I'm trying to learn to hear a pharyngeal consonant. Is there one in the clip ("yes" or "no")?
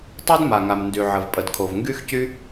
yes